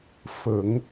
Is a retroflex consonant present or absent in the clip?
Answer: absent